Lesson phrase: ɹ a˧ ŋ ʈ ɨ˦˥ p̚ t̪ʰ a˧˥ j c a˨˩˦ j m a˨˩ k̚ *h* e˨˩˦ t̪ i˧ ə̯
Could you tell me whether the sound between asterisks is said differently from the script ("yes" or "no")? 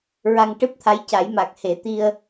no